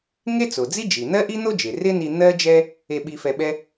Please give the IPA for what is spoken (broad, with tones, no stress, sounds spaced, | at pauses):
ŋ e˥ t͡s o˩ d͡z i˥ d͡ʒ i˩ n̪ ɜ˥ ʔ i˥ n̪ o˥ d͡ʒ e˩ r ɪ˥ n i˧ n̪ ɜ˥ d͡ʒ ɛ˥ | e˧ ɓ i˧ f ɛ˧ ɓ ɛ˥